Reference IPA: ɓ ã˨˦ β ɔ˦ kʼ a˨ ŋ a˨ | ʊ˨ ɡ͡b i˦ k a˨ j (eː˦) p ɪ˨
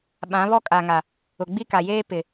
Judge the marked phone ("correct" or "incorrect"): correct